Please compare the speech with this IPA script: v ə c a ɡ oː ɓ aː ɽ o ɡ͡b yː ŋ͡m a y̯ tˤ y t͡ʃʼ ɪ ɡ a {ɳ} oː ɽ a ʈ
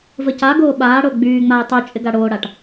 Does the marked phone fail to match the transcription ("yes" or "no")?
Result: yes